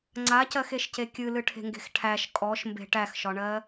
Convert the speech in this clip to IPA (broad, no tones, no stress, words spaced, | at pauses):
ŋ͡ǀacɜxeʃce kʲɨlɨʈʰe̤ŋɡe̤x ʈʰæʃ kʼɔʃmbe̤ ʈæxʃɒɳɜ